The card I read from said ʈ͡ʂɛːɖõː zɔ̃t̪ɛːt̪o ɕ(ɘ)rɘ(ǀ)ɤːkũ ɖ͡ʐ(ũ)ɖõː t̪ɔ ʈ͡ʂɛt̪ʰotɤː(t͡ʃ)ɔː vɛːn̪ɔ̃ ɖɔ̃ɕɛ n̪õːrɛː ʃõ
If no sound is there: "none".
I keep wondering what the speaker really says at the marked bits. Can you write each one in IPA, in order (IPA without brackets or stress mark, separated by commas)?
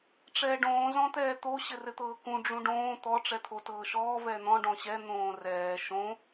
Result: ɘ, t̪, ũ, ʃ